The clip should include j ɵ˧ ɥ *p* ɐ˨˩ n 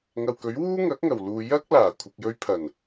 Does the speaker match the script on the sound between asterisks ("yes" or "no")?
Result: no